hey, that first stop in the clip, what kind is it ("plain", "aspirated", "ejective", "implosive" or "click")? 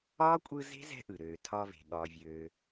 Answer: ejective